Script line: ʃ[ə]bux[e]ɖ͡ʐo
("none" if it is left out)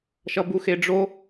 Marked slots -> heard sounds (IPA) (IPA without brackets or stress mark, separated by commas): ʌ, e